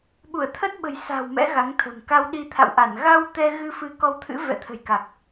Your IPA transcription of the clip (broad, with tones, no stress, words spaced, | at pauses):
ɓu˧˩ə̯t̪ʰə˦˥t̚ɓə̤˨˩jsa̤˨˩w mɛ̰˧˥ɣa˨˦ŋt̪ʰə̤˨˩m ka˧wɗi˧t̪ʰa̰˧˨wʔa˧˩n ɣa˧w t̪ɛ˧ɣɨ˧fɨ˨˦ kɔ˧wt̪ʰɨ̰˧˥ vɛ̰˧˨t̪ʰə̤˨˩jka˨˩k̚